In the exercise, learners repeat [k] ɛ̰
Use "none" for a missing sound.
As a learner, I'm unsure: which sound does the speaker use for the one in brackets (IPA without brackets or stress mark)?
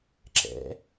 ǁ